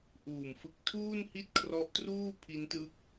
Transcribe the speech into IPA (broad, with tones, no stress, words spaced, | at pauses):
ʔuː˨˩mfɯ˦˥k̚ tʰuː˥˩nhi˥˩t̚kʰrɔ˦˥ʔtruː˥˩ pʰi˦˥ntɯ˦˥k̚